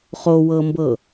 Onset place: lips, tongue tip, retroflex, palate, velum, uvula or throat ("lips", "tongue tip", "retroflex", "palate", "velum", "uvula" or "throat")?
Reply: uvula